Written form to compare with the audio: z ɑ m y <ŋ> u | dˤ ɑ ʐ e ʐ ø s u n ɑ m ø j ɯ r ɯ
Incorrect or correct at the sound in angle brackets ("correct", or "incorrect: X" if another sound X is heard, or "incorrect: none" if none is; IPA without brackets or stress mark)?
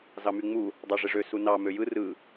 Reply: incorrect: ŋ͡m